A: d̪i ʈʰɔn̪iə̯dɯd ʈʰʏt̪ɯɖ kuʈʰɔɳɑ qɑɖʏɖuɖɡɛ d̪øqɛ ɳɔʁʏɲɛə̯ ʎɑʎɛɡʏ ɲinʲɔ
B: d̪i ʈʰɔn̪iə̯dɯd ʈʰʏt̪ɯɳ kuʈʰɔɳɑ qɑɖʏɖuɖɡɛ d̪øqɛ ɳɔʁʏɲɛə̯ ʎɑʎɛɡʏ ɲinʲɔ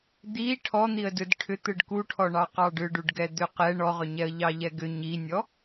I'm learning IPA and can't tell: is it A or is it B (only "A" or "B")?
A